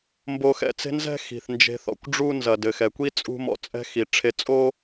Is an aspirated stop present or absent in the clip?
present